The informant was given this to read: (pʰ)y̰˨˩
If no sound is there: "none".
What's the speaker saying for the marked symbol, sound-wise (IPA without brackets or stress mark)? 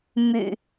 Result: m